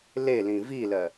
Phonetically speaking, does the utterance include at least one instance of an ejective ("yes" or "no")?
no